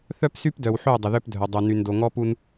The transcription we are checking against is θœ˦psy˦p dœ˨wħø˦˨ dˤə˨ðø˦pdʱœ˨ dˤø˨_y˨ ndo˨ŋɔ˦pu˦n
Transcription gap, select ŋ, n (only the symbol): n